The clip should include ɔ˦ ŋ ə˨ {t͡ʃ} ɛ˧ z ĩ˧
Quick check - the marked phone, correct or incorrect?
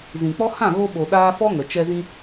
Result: correct